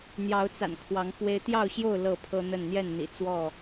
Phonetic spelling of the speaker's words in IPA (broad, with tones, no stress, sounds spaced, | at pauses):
n̪ j ɑ˨˦ ʊ̯ t͡s a̰˨˩ n kʰ w ɑ˨˦ ŋ f w e˦ ɪ̯ t̪ j ɑ˥˨ ʊ̯ ɕ j o˥˨ ʊ̯ l ɤ˥˨ pʰ ɤ˦ n̪ ə˥˨ n n̪ j ɛ˥˨ n n̪ ḭ˨˩ t͡s w ɔ˥˨